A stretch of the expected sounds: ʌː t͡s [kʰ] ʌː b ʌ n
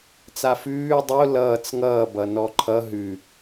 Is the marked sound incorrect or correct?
incorrect